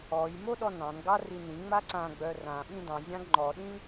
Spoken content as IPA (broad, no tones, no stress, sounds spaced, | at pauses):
ɔ j m o ɗ ɔ n ɑ̃ n ɡ ɑ r i n ĩ ŋ͡m a ǀ ã ɡ͡b œ r ã ɓ ĩ d ɑ̃ zʲ ɑ̃ ɡ ŋ͡ǃ ɔ ɗ ĩ